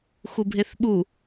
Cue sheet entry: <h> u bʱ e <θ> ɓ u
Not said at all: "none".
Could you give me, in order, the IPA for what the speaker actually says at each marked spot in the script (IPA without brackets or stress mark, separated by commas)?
x, θ